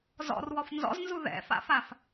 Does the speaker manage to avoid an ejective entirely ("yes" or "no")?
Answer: yes